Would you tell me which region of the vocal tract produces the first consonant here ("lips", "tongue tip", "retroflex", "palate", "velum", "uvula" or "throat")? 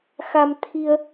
velum